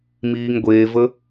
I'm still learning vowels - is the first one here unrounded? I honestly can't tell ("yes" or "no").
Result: yes